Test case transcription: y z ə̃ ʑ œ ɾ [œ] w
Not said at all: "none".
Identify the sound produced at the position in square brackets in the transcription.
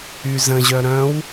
œ̃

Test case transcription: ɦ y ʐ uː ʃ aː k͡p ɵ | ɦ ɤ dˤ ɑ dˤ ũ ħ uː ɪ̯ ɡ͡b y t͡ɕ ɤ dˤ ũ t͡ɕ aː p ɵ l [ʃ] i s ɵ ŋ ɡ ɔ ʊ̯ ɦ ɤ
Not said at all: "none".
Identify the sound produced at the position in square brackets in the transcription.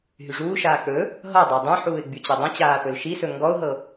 ʃ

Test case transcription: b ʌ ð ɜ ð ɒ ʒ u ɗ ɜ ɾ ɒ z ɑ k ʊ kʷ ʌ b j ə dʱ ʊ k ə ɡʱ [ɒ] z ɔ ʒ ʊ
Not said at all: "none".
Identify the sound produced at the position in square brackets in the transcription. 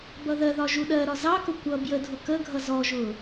ʌ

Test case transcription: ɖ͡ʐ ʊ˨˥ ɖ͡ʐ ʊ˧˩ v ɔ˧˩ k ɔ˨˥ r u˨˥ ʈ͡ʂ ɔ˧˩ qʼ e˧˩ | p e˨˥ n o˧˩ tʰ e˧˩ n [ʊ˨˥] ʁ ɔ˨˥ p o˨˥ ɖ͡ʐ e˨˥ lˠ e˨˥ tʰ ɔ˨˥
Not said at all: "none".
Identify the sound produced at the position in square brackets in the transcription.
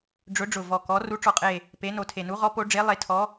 u˨˥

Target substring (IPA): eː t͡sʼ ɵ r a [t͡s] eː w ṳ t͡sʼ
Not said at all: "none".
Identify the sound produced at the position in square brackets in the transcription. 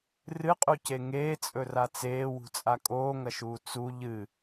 t͡s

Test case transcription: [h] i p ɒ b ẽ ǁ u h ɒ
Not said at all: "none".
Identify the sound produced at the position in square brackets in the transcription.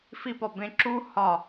f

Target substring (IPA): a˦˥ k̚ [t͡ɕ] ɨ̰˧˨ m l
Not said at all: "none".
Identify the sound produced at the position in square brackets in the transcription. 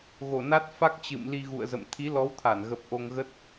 t͡ɕ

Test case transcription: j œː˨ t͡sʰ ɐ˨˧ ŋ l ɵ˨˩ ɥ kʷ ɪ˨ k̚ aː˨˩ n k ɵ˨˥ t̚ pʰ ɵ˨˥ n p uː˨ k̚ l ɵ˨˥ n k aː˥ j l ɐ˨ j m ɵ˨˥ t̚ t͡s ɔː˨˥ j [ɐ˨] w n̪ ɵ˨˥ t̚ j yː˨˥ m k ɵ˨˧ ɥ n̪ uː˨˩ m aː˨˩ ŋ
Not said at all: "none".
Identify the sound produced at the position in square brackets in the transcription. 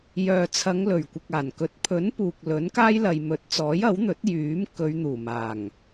ɐ˨˥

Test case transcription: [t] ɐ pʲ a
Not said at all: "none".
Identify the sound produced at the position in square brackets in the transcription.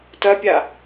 t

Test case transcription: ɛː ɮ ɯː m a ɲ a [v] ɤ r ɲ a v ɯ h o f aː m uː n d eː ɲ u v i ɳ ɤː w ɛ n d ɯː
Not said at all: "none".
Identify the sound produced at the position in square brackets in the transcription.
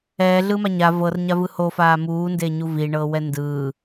v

